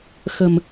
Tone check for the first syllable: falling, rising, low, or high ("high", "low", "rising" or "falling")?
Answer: low